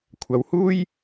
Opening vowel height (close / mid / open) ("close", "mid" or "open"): open